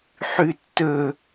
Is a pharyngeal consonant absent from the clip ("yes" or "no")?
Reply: no